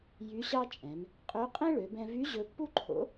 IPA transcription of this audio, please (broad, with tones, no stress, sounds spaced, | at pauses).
j y˧˥ ɕ ɑ˥ t͡ʃʼ ɛ̃˩˧ m | qʼ ø˧˥ qʼ ẽ˥ ɭ ø˩˧ b ɛ̃˧ v y˧˥ ʑ ɵ˧ pː u˥ ǃʰ o̰˧˥